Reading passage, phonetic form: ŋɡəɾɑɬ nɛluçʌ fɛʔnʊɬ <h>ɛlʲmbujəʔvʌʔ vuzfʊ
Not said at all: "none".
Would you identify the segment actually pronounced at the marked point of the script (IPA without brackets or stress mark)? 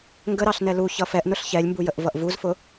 ç